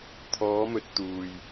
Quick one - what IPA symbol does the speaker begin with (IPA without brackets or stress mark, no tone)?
t̪ʰ